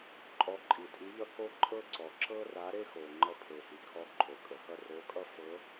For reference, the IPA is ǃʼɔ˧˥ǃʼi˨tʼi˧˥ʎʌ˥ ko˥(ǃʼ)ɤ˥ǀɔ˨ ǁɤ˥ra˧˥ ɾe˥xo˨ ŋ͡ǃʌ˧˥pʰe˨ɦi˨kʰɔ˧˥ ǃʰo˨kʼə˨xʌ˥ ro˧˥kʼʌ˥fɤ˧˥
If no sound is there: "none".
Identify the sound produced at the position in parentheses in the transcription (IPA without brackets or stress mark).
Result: ǃʼ